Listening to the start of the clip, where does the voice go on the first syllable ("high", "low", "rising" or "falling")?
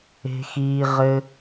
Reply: high